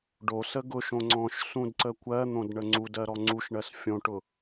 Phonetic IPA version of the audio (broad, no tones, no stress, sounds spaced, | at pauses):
ɖ o s ə ɡ ʊ ʃ õ ŋ͡ǀ ɔ̃ ʃ s ũ d ǀ ə kʷ ɜ n̪ õ d ɳ ə ŋ͡ǀ u d ɜ ɾ ɔ ŋ͡ǀ u ʃ ɳ ɜ s fʲ õ ʈ ʊ